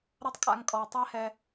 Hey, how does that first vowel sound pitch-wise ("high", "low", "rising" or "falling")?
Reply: high